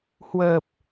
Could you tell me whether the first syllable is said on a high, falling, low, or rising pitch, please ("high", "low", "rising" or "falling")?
low